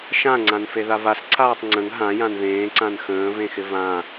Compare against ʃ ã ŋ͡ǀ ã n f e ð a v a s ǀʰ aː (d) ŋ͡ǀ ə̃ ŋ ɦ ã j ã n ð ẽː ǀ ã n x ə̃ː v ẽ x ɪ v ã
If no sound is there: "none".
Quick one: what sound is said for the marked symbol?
tˤ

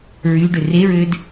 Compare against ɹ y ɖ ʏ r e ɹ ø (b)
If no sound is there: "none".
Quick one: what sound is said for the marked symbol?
d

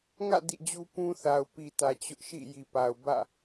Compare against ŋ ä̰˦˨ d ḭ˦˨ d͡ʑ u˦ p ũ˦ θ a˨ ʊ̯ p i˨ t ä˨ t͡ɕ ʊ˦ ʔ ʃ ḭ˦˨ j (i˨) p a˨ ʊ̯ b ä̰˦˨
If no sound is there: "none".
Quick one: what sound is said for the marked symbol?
i˨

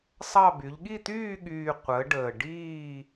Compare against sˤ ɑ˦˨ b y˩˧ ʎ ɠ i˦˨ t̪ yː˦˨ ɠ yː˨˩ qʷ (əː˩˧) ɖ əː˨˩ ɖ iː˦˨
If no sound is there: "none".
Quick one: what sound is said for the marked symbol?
əː˩˧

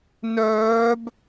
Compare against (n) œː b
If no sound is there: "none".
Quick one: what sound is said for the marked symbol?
n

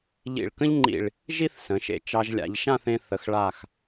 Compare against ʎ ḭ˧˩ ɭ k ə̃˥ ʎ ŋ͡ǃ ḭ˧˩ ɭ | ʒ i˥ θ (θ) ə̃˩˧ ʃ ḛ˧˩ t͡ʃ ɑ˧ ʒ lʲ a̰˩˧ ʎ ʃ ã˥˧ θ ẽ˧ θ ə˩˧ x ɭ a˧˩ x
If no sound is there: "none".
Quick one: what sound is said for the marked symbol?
s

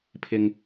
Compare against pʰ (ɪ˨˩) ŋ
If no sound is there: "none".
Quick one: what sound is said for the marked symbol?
ɪ˥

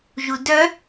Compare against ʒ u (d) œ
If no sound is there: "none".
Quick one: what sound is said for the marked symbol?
d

